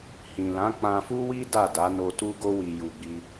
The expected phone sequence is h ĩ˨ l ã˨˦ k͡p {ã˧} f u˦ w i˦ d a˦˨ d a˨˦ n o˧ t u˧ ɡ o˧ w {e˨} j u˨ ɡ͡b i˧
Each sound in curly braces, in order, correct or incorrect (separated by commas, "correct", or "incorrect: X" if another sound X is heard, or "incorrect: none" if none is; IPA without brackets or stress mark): correct, incorrect: i˨